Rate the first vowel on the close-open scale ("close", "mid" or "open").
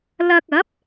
open